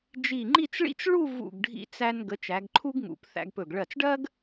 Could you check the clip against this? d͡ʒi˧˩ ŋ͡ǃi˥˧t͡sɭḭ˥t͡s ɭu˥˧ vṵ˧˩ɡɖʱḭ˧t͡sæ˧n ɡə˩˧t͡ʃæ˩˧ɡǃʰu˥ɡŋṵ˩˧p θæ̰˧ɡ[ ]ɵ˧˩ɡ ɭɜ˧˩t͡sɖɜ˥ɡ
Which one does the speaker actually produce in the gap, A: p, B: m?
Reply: A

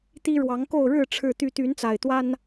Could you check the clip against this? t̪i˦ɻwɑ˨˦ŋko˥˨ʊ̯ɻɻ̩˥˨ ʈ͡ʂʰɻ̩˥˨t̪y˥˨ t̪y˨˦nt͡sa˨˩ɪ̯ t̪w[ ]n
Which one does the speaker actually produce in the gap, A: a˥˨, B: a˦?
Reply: B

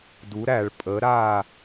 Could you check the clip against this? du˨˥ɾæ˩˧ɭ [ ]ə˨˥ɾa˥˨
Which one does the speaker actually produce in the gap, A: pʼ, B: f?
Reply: A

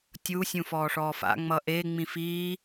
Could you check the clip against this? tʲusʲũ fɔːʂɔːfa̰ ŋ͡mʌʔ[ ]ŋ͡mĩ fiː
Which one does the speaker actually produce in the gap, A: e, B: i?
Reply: A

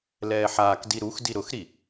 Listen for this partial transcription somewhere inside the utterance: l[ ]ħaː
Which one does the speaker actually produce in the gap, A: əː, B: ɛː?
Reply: B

